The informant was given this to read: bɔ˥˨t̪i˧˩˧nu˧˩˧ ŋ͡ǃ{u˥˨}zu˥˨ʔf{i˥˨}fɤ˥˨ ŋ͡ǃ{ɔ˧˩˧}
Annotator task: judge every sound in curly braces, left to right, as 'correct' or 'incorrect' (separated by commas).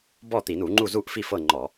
correct, correct, correct